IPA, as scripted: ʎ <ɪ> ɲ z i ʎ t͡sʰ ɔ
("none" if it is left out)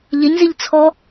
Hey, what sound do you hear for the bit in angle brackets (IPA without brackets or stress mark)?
ɪ